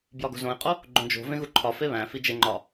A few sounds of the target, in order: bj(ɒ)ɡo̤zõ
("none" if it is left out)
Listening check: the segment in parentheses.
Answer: ɒ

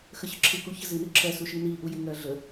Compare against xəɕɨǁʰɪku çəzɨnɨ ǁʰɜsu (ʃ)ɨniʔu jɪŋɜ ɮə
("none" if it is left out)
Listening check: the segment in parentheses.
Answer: ʃ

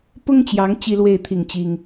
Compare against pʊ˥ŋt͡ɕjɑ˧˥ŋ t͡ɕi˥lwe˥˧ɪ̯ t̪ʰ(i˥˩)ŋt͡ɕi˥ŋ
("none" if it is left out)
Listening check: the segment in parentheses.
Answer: i˥˩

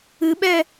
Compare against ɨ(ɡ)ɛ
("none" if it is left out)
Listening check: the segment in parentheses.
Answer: ɓ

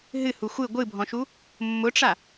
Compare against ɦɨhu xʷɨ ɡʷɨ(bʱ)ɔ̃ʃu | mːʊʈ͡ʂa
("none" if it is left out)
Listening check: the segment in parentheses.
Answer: bʱ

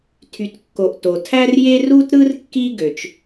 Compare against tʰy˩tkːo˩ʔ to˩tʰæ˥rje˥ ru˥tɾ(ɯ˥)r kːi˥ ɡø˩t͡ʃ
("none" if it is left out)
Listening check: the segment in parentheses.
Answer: ɯ˥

